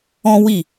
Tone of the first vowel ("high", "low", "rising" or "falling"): high